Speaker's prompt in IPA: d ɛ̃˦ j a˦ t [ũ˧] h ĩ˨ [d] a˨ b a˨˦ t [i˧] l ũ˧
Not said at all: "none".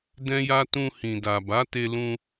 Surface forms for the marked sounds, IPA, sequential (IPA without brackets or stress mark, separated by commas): ũ˧, d, e˧